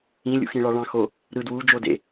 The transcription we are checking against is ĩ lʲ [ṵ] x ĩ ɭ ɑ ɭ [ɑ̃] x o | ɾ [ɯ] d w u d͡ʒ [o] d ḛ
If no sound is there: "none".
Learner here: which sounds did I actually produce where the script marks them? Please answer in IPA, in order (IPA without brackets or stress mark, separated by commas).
ṵ, ɑ̃, ɯ, o